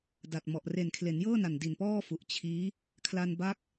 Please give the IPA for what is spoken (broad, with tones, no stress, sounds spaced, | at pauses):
d a˨˩ t̚ m ɔ˨˩ ʔ r e˨˩ n kʰ l e˩˦ n j ɤː˥˩ n a˨˩ n d i˨˩ n p ɔː˥˩ f u˨˩ ʔ t͡ɕʰ iː˦˥ | kʰ l a˧ n b a˦˥ k̚